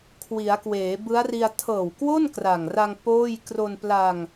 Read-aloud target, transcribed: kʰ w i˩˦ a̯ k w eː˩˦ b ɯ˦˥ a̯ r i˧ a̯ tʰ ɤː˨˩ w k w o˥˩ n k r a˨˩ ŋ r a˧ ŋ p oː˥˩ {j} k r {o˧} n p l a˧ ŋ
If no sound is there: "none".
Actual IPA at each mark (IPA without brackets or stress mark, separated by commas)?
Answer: j, o˧